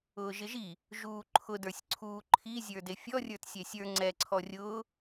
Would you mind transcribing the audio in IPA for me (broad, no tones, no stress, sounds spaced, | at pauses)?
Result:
ʊː ʒ ɪ ʒ i | ʒ uː ǃʰ ʊ d ə˞ sʲ ǀʰ uː ǃʰ i zʲ ə˞ d e fʲ ɔ rʲ ə˞ t sʲ ɛ sʲ ə˞ ŋ͡ǀ ɛ ǀʰ ɔ rʲ ʊː